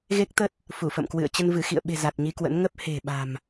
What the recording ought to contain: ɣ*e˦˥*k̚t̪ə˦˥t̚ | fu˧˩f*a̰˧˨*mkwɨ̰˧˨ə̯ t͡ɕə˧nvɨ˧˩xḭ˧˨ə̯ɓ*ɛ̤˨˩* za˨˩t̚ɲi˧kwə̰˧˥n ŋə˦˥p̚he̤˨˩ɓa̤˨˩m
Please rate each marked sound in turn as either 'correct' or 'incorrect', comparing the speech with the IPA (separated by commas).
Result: correct, incorrect, incorrect